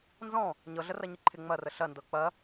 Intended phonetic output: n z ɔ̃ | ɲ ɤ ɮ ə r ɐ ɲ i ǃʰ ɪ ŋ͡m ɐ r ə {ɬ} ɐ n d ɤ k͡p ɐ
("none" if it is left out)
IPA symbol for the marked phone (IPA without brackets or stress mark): ɬ